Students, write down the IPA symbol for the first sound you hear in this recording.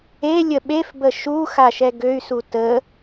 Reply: e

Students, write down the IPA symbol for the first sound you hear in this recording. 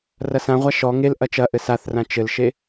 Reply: r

